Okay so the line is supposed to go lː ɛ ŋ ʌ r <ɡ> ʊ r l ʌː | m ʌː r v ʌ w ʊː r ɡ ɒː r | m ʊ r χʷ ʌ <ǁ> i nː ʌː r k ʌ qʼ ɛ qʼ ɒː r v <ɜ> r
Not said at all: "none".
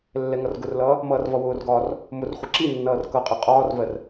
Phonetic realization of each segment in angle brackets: ɡ, ǁ, ɜ

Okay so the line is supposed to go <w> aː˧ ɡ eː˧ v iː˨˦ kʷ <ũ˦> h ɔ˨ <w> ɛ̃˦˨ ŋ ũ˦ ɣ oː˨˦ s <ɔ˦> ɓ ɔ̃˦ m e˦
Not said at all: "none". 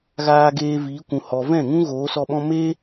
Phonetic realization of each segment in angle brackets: ɣ, ũ˨, v, ɔ˧

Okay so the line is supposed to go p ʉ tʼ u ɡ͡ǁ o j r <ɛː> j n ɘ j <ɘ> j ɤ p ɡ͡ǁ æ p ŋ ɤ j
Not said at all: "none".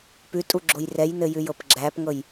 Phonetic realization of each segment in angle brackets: ɛ, ʉ

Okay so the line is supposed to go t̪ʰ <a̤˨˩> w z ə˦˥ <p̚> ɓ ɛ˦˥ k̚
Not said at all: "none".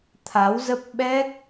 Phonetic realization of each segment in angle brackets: a˨˦, p̚

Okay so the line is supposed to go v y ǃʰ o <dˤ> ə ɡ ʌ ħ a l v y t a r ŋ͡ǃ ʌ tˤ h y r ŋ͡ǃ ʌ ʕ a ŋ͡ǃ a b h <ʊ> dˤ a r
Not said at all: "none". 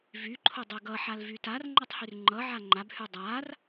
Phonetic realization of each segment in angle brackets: dˤ, ʉ

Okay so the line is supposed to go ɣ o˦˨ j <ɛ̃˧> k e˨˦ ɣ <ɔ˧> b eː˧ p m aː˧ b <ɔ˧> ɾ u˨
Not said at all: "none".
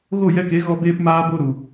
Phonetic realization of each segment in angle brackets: ɛ˧, ɔ˧, o˧

